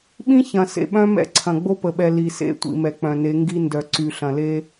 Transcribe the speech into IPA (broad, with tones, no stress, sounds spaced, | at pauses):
ɓ ĩ˦ ç ɐ̃˨ s ḛ˨ ɓ œ̃˦ m ɛ̰˦ ǀʰ ɐ̃˨ ɡ͡b o˦ p ə˨ ɓ ɛ˨ l i˨ s ḛ˦ tʷ ḭ˨ m ɛ˨ k͡p œ̃˨ n e˨˦ ŋ ɡ i˦ n d œ˨ ǀ y˨ ɬ ɐ̃˨ l e˦